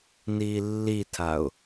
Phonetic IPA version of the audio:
n iː lː i tʰ a ʊ̯

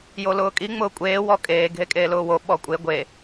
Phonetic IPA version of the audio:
j o l ʊː kʼ i ŋ͡m ʊː kʷʼ eː w ɔ kʼ eː ɡʱ e kʼ eː l ʊː w o ɓ ɔ kʷʼ e ɡʷ e

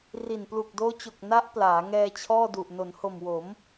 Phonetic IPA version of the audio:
r i˨˩ n p l u˨˩ k̚ d oː˦˥ t͡ɕ o˨˩ k̚ n a˦˥ ʔ p l aː˩˦ ŋ ɛː˧ t͡ɕʰ ɔː˥˩ d u˨˩ ʔ n o˩˦ n h o˨˩ m w o˩˦ m

